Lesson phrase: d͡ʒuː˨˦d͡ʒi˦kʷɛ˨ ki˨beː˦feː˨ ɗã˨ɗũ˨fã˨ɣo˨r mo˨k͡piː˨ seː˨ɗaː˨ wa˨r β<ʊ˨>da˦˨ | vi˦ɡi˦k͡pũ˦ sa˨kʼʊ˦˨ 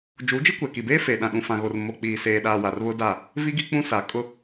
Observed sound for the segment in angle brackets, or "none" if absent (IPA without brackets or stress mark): ʊ˦